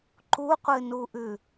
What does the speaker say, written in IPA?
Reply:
ǃ u qʷ ɨ n u ʔ ʉ

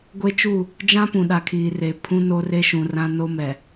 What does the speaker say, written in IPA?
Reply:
ɡʷ e˦ t͡ʃ u˦˨ | d͡ʒ ã˦ p ũ˨ ɗ a˨ kʰ iː˨ r e˨ pʰ ũ˦ n o˦ r e˦ ʃ ũ˨ r ã˦ n o˦ m ɛ˨

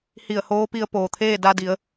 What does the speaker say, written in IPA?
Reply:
h i˧˩ ə̯ h oː˧˥ p i˧ ə̯ p oː˩ t̪ʰ eː˥˨ d a˧ d i˩˧ ə̯

